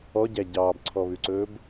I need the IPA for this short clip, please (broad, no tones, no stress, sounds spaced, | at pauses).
ɔ ɟ æ ɟ ɑː b ǀʰ ɔ β ʉ ǀ ɵː b